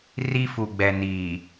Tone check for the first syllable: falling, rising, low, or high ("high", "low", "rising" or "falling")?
high